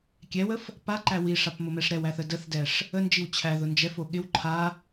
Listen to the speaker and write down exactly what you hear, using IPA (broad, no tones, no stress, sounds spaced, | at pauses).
kʲ ɛ w ə f | p a ǃ æ w i ʂ a p m ʊ m ɛ ʂ ɾ ɛ w æ θ ə d ə θ d ɛ ʂ | ə n d͡ʒ i w t͡ɕʰ æ ð ʊ n d͡ʒ ɛ f o ɠ ɪ w ǃʰ a